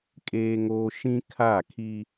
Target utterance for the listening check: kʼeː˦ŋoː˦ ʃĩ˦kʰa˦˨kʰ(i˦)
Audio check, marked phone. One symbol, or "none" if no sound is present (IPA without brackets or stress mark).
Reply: i˦